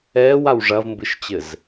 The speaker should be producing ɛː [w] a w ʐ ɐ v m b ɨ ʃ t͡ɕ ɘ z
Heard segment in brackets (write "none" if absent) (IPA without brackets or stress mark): w